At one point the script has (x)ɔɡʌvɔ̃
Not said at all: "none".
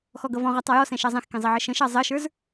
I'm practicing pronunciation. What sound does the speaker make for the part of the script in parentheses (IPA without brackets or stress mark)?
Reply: x